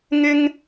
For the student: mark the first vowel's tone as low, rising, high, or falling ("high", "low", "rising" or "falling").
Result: high